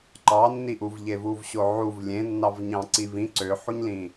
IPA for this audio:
ǃ ɑ nː i ʔ u v ʎ e v u v ɕ o ʕ u v lʲ ẽ nː ɑ v ɲ ɑ̃ ǀ i v ĩ ǀ ø ħ u ɲ l ĩ

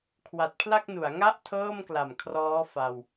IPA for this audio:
kʰ w a˨˩ t̚ pʰ l a˥˩ k̚ n u˩˦ a̯ ŋ a˥˩ ʔ tʰ ɤː˥˩ m k l a˨˩ m kʰ r ɔː˦˥ f a˧ w

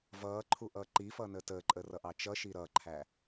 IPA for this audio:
v ʌː ǃʰ u ʔ ʌː ǃ i f ʌː n əː t əː ǃʼ əː r ʌ ʔ ɑ t͡ʃ ʌ ʃ i ɾ ʌ ǃʰ æ

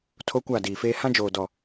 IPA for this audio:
tʰ o˦ kʷ a˦˨ d iː˨ f eː˦ h ã˦ d͡ʒ oː˨ d ɔ˨

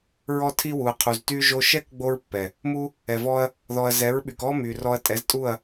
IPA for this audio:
ɹ ɔ˧ tʰ i˧ w u˨ ɐ̯ qʰ u˨ z t y˦ ʒ o˧ ʃ ɛ˦ k ɡ͡b o˦ ɹ pː ɛ˨ | m u˦ | ɛ˨ v ɔ˦ ɐ̯ | ð ɔ˨ ɐ̯ z ɛ˨˦ ɹ ɓ y˨ k ɔ˦ m y˨ r ɔ˧ ɐ̯ tʼ ɛ˨˦ z tʼ u˦˨ ɐ̯

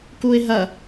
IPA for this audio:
k u ɪ̯ ɦ ɐ

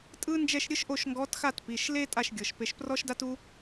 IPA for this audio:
tʼ ɯ˥ n d͡ʒ ɛ˥˧ ʃ ɾʲ ɯ˥ ʃ ʔ o˥˧ ʃ ŋ ɡ ɔ˧˥ t x a˥˧ t p i˩˧˩ ʃ l e˥ tʼ a˥˧ ʃ ɡʲ ɤ˩˧˩ ʃ p e˧ ʃ p r ɔ˥ ʃ d a˥ t u˥

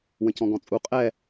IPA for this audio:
w ə̃ c ɔ̃ ɡ ɔ̃ t͡sʼ u qʼ ɛ

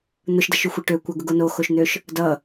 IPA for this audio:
n̪ ʊ ʃ d ʌ ʃ y xʷ e ʈ ø kʷ ʌ ɡ ʊ ɡ o n o x o ʃ n̪ ø ʃ | d ʌ

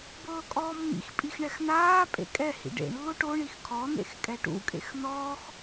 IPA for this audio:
b ɤː kʼ ɔː mː ḭ x pʼ i x ɳ ɛ x n aː pʼ ḛ kʼ ɛ h ḭ ɖ ḛ ɳ lː o ʈ o ɳ i x kʰ ɔ n̪ ḛ x kʼ ɛ ʈ ṵ kʼ ḛ x n ɔː x

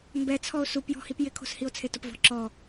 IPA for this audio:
m b ɛ t͡sʰ ɔ o̯ s u p j ɔ̤ h i p j ɪ kʰ o̤ s h i o̯ t͡sʰ e t ʊ p v ɔ̤ ǁ ɔ

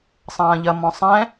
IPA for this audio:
sˤ ɐ̃ː ʎ ɐ m ɔ̃ sˤ ɛ̃

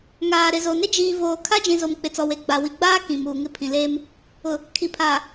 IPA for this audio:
ŋ aː˨ ɾ ɪ˨ z o˨ n ɪ˦ d͡ʒ iː˨ v oː˨ kʰ a˦ d͡ʒ ĩ˨ z o˨ m k͡p ɪ˨ t͡s ɔ˨ w e˨ ɡ͡b a˨ w i˨ ɡ͡b aː˦ k ĩ˨ m uː˨ ŋ ɪ˦ pʰ ĩ˨ l eː˦ m | ʊ˨ | kʰ i˨ pʰ aː˨

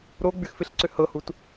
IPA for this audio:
ɾ o ɡ͡b y x f ɪ ɬ ǀ ʏ h ɤ h u t

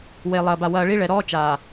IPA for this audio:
w e˨ lˠ ɐː˨ b a˨ w ɐː˨ ɭ i˦ ɭ ɛ˨ ɾ ɔː˦ t͡ʃ aː˨

